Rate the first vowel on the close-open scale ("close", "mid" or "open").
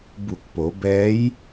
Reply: close